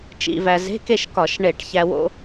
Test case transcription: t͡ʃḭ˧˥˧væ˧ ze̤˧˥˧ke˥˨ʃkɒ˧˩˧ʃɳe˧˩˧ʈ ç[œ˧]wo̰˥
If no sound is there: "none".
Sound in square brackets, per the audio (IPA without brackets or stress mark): æ˧